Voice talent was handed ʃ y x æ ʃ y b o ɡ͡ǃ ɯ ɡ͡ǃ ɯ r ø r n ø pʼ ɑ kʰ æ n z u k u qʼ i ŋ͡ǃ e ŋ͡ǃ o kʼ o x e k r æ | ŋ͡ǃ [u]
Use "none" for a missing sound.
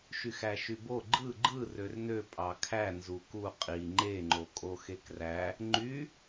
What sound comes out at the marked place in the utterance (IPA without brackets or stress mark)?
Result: y